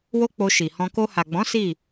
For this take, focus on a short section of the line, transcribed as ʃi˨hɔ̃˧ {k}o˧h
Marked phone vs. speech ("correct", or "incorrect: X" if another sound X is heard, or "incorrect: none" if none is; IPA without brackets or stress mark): correct